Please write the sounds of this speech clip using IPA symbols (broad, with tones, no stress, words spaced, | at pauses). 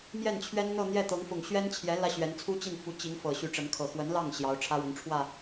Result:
mjɛ˥˩nt͡ɕʰɥɛ˥n n̪ɤ˥˧n̪jɛ˥˩t̪ɤ˧˥ŋfʊ˨˩ŋ ɕɥɛ˥nt͡ɕʰjɛ˧˥ lä˥ɕɥɛ˧˥n t͡sʰu˥t͡ɕi˥˩n fu˧˥ t͡ɕi˧˥ŋfɤ˨˩ ɕy˧˥ʈ͡ʂə˧˥nkʰɤ˨˩ xwə˧˥nlɑ˥˩ŋ ɕjɑ˧˥ʊ̯ʈ͡ʂʰä˥ɻʊ˧˥ŋ ʈ͡ʂʰwä˥˩